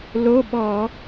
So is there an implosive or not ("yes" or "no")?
yes